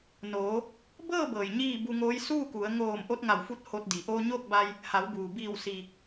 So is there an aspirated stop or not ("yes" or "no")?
no